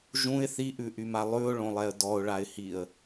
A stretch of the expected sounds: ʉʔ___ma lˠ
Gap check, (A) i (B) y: B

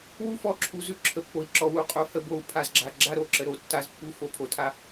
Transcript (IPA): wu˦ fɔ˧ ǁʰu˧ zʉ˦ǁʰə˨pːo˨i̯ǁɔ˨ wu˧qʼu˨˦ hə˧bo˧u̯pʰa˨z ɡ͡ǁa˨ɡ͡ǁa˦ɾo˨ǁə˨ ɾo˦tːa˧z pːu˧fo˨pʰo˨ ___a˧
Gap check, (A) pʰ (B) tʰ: B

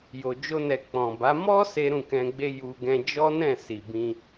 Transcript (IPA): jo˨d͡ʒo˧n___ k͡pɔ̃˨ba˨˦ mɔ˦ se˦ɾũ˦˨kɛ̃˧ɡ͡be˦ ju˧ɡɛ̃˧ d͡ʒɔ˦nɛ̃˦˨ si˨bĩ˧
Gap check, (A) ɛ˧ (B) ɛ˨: B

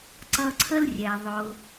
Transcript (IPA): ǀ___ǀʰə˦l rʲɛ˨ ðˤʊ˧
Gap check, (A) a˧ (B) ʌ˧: B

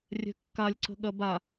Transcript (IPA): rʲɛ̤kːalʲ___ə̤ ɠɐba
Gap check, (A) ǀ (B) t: A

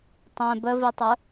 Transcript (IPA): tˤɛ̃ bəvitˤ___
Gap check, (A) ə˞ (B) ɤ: A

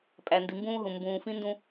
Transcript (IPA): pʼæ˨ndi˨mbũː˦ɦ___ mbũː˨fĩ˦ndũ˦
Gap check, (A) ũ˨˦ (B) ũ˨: B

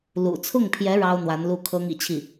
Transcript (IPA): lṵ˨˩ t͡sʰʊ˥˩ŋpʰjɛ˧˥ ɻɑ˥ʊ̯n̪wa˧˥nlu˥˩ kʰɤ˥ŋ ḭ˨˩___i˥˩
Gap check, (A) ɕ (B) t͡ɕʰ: B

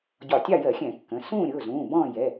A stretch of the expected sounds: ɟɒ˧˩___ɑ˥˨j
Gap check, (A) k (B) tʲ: B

